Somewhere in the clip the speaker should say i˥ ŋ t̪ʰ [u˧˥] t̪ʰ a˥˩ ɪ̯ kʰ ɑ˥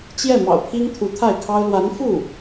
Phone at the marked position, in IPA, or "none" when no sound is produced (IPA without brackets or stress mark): u˧˥